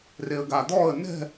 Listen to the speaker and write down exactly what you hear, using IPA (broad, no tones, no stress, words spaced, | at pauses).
reə̯ɡad̪ɔə̯ nɛ̤